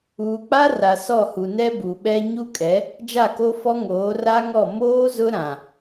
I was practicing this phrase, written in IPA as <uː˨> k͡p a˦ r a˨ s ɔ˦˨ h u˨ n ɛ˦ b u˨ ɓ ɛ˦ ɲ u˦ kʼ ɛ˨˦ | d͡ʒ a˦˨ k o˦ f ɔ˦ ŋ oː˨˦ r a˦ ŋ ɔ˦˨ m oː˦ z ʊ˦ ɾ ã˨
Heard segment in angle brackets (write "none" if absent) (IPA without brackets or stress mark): uː˨